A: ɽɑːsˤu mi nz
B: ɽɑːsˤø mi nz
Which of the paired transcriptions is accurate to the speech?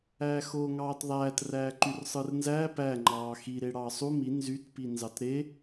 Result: A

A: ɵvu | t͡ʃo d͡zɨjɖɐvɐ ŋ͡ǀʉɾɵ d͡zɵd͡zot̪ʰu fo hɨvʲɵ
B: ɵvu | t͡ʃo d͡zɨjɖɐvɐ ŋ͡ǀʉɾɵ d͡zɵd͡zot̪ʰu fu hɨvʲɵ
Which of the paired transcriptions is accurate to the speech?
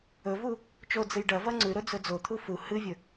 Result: B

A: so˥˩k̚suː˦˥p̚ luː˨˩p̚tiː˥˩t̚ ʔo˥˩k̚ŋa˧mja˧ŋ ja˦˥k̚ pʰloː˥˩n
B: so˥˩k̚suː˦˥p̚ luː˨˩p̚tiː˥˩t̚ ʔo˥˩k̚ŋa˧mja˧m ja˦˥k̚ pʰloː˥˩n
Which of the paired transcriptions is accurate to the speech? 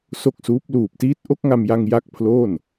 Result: A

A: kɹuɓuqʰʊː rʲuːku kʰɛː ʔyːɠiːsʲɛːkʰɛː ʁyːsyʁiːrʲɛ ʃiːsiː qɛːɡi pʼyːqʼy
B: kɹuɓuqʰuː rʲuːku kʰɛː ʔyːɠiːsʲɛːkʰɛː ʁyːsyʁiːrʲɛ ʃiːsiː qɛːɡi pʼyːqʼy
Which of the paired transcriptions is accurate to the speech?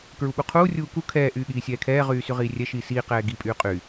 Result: B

